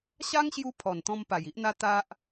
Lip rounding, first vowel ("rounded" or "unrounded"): unrounded